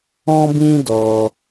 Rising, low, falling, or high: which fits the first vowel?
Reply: high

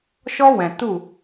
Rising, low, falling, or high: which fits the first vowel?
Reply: high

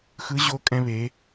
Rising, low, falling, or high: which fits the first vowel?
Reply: rising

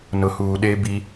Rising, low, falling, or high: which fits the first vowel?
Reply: low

